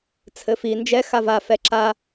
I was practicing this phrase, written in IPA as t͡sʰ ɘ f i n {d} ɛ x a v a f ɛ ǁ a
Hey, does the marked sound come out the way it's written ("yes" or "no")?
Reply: no